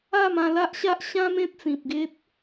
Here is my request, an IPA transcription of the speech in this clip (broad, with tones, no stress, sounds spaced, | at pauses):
a˥˧ m ã˧ l a˦ ʔ ɕ a˦ ʔ ɕ ã˦ m ẽ˦ t̚ t͡s ĩ˨ p̚ ɡ e˦ t̚